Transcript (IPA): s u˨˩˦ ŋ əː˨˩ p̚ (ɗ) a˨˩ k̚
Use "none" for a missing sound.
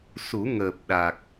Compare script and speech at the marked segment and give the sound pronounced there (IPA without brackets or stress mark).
ɗ